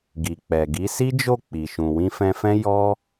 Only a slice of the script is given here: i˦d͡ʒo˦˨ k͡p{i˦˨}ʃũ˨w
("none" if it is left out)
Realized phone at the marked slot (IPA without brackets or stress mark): i˨